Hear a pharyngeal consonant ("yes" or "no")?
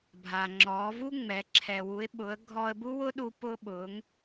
no